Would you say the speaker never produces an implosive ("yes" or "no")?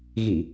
yes